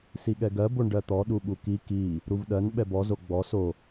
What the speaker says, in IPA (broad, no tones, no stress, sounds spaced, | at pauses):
s i ɠ ɛ ɡ ɜ b o ɳ ɖ ɜ t̪ ɔ ɗ u ɓ u k i k i | ɾ u v ɗ ɜ n ɓ ɛ b ɔ z o ɡ͡b ɔ s o